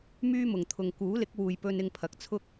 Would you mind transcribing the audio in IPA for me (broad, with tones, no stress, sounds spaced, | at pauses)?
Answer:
m yː˥ m ʊ˨ ŋ t̪ʰ ʊ˨ ŋ k uː˨˥ l ɪ˨˥ k̚ w uː˨ j p ɵ˧ n ɪ˧ ŋ pʰ ɐ˨ k̚ t͡sʰ ʊ˥ k̚